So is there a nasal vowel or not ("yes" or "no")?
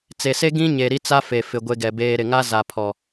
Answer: yes